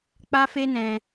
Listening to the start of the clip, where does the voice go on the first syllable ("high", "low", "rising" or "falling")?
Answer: high